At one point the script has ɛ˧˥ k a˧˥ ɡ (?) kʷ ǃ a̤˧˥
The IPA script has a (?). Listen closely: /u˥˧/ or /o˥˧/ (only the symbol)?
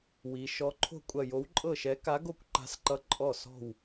o˥˧